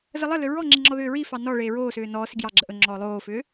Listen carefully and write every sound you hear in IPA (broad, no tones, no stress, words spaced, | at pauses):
zəlˠəlʏ ɹɔŋ͡ǁi ŋ͡ǁɔðʏːɹifɑ nɔ ɭeːɹoːsʏː nɔːsi ɡjɑɡ͡ǁə ʔɵ ŋ͡ǁɔːlˠoːfʏː